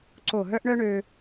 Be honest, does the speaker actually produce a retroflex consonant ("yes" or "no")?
yes